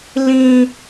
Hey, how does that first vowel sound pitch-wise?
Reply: high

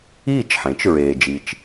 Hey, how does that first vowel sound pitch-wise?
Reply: falling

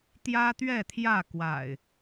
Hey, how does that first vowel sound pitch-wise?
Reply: high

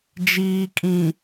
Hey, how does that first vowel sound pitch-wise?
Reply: low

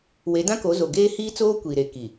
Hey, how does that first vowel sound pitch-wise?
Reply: rising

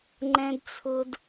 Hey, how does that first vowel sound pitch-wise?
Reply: high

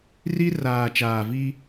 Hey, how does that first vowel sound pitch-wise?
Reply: high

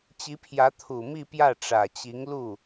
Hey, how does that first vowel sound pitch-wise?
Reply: rising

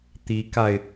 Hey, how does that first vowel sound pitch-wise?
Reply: rising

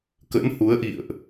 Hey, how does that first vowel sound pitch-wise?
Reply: rising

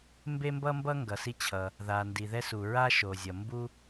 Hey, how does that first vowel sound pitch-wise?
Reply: high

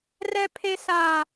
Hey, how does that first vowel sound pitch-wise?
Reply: high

